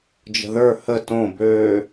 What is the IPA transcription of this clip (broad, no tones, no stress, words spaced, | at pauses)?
d͡ʒə̤ðə˞ hə tõ bø